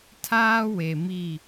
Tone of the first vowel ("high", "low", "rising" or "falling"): high